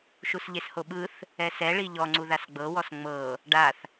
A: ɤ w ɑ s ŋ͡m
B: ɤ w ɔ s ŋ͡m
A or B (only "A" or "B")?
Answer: B